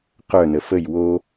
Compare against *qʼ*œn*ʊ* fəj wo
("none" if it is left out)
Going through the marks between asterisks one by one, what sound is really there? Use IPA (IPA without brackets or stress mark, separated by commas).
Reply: q, ə